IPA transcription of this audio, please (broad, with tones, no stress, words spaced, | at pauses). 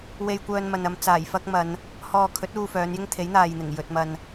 we˧jkʷœː˧nmɐ˨n ɐ˨˧m t͡saː˨˩jfɐ˥k̚mɐ˨˧n | hɔː˨kʰɵ˨˥t̚ uː˧fœː˨˧njɪ˥ŋ t̪ʰe˨˥jn̪aː˨jn̪ɪ˨˩ŋ jɵ˨t̚ mɐ˧n